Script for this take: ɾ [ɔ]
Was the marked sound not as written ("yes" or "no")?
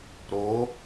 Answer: yes